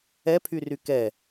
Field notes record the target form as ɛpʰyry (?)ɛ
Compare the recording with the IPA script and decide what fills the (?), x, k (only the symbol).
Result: k